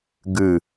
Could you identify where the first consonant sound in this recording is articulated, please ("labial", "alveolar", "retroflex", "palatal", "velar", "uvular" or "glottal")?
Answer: velar